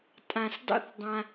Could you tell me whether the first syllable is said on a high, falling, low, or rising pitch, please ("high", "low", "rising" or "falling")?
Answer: high